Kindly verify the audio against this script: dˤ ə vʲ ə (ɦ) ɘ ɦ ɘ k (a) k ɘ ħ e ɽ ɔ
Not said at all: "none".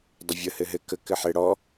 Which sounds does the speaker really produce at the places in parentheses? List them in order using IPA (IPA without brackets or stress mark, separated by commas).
h, ə